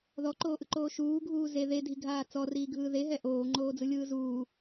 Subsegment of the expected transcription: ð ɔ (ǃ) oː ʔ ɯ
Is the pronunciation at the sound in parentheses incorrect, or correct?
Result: correct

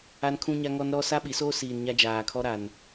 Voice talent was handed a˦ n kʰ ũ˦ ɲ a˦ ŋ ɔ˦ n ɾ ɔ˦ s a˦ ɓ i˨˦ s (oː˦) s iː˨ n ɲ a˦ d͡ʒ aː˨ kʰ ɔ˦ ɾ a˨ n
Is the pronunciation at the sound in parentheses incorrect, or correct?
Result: correct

